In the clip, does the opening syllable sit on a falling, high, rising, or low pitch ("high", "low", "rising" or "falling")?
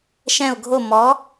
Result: falling